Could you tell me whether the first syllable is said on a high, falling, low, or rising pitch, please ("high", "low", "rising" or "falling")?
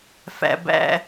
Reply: low